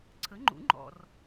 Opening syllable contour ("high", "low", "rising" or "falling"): rising